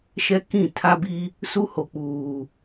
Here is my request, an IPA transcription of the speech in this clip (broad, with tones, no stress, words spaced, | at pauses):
ʃɛ˦kĩ˦˨ tʰa˦bi˦ | su˦ho˨k͡puː˨